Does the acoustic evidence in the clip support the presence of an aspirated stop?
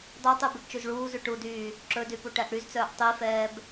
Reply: no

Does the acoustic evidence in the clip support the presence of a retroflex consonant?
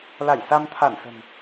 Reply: no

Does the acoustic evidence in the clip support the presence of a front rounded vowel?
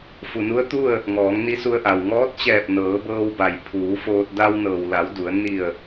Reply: no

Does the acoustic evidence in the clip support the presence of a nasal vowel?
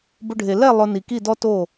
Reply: no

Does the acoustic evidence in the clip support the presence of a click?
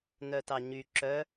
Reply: yes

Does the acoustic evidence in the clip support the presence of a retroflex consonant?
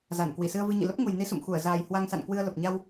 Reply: no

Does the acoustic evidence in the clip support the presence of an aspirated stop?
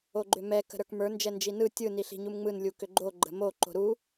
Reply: no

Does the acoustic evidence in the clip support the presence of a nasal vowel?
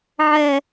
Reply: no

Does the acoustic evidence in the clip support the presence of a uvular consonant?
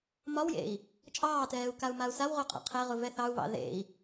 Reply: yes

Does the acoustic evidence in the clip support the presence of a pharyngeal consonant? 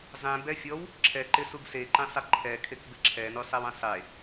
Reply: no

